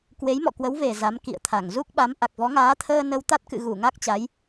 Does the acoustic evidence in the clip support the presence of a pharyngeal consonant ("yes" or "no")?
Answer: no